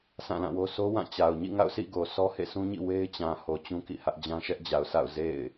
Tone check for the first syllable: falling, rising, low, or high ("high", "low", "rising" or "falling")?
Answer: falling